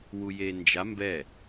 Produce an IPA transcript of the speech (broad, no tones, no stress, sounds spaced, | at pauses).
w u j e n d͡ʒ a m b ɛ